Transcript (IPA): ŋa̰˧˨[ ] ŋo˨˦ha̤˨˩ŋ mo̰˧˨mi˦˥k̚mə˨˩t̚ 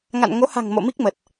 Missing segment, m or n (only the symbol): n